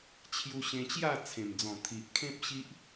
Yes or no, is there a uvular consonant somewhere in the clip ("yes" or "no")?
no